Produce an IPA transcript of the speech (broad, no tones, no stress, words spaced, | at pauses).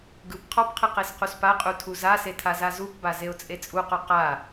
ɡɯp qʰɔpqʰɯ qesquspaqʼu tʰuzase tʰazazupba zeʊ̯t͡sʼet͡sʼuqɔ qa